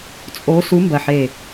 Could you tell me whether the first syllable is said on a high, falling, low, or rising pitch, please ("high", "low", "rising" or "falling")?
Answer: rising